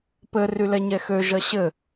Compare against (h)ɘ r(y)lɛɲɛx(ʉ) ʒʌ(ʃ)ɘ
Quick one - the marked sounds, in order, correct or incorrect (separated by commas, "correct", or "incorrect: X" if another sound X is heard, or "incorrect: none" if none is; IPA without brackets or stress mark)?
incorrect: p, correct, incorrect: ø, incorrect: ɕ